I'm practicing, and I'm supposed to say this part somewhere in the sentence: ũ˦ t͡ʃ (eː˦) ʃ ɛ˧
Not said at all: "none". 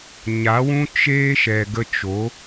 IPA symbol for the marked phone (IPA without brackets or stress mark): eː˦